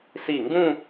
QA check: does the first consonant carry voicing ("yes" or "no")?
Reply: no